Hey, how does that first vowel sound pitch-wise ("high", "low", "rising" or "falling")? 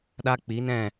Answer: high